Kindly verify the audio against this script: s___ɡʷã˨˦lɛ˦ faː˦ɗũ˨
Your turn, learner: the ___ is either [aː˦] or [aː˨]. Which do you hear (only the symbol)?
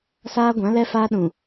aː˦